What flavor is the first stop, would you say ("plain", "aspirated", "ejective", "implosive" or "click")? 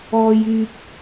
plain